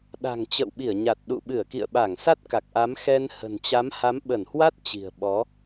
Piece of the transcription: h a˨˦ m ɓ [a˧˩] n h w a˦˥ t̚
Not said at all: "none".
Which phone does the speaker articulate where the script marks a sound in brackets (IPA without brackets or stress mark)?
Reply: ə˧˩